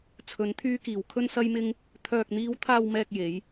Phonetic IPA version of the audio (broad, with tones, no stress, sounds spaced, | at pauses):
t͡sʰ ɵ˨˧ n t̪ʰ yː˧ k iː˨˩ w kʰ ɵ˧ n s ɐ˧ j m ɪ˧ ŋ | t̪ʰ œː˨ k̚ n̪ iː˨˧ w t̪ʰ aː˨ w m ɛː˨ k̚ j e˨˧ j